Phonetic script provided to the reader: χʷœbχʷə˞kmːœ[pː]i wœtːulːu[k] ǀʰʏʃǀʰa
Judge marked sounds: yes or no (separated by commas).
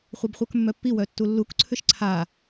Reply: yes, yes